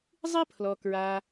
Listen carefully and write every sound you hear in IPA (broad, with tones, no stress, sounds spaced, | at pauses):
zˤ ɨ˥ pʰ l ɔ˩ k ɹ a˩